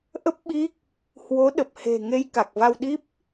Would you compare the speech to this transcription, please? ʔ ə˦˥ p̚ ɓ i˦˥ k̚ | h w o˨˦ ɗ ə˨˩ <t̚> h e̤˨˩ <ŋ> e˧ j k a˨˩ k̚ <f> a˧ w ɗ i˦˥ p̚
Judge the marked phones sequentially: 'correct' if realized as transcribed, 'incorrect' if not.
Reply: incorrect, correct, incorrect

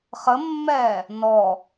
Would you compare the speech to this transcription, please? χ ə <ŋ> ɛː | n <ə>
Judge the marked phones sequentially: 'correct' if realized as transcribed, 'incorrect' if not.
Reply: incorrect, incorrect

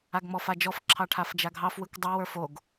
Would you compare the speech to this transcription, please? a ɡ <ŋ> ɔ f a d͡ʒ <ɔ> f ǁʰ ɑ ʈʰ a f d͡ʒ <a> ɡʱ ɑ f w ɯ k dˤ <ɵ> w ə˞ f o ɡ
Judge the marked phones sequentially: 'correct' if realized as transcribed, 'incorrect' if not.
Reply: incorrect, correct, correct, incorrect

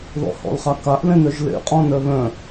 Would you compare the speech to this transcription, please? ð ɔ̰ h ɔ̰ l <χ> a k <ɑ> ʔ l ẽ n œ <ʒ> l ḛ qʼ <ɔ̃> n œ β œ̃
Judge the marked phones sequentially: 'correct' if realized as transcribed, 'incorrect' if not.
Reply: correct, incorrect, correct, correct

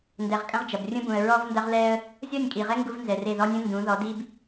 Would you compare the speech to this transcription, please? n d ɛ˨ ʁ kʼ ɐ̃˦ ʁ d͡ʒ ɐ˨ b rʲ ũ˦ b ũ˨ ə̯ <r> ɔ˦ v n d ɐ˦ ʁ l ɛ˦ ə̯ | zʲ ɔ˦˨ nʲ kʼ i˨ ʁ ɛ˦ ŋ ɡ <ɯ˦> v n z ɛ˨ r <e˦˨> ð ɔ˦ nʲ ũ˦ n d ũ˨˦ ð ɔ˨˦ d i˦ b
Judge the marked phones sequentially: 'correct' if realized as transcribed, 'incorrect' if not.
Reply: incorrect, incorrect, correct

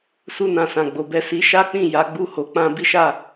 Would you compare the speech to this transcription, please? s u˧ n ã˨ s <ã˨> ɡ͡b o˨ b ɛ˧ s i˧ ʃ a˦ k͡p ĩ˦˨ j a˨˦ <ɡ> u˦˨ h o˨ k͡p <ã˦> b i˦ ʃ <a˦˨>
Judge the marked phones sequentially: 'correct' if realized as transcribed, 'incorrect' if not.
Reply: correct, incorrect, incorrect, correct

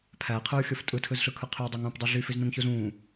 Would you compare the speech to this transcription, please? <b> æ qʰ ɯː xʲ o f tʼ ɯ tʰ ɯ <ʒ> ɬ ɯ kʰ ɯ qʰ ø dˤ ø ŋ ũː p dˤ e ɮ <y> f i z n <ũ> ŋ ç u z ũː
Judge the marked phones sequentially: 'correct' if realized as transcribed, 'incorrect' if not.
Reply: incorrect, incorrect, correct, correct

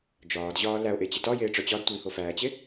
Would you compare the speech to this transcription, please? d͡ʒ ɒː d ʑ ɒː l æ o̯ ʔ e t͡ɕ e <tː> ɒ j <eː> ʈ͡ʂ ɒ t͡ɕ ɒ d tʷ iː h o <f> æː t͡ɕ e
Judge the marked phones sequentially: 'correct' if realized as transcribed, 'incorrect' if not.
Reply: incorrect, correct, correct

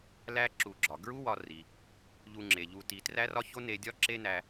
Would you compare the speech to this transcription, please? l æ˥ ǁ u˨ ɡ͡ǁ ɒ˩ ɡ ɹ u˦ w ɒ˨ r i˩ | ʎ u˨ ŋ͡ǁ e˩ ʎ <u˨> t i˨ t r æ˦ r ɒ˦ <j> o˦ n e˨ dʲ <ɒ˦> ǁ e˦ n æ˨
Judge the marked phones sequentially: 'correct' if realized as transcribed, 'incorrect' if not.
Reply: correct, incorrect, correct

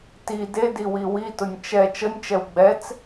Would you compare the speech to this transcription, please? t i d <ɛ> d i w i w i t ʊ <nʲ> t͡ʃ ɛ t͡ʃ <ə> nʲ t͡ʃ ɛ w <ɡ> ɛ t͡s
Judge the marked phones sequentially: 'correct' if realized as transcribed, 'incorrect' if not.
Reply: incorrect, correct, correct, incorrect

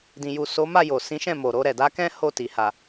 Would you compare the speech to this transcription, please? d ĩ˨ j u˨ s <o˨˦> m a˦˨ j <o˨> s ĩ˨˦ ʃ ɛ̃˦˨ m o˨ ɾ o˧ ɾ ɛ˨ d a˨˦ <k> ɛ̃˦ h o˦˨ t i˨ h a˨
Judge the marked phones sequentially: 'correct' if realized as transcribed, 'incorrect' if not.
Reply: correct, correct, correct

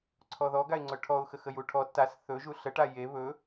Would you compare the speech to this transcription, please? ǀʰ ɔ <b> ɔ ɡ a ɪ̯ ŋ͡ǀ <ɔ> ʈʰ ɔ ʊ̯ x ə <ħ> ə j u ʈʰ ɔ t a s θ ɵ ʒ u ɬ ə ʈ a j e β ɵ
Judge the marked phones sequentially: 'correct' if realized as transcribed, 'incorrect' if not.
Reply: incorrect, incorrect, incorrect

